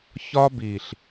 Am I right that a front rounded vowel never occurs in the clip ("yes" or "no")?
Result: yes